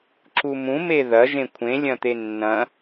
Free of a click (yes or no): no